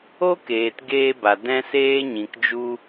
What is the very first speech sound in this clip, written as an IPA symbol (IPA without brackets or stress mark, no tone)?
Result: o